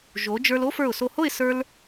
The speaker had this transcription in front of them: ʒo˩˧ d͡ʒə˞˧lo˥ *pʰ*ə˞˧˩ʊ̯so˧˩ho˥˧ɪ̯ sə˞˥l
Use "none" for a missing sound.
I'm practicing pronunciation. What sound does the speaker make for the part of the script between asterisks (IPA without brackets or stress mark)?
f